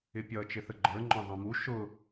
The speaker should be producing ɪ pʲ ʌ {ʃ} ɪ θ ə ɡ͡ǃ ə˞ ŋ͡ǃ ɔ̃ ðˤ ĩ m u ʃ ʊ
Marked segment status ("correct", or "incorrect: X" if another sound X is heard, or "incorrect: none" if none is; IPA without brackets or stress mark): incorrect: t͡ʃ